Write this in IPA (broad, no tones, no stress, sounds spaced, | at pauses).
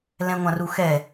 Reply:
l ɛ̃ ŋʷ ã r u x ɛ